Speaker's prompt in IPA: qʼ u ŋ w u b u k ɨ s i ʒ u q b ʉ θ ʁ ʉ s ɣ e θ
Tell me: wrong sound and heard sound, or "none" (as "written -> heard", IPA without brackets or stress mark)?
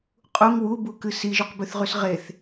ɣ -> ʁ